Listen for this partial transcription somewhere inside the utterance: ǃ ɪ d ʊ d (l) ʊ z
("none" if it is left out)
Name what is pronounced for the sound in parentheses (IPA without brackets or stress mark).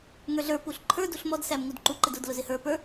l